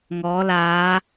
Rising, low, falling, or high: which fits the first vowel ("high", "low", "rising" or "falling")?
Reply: rising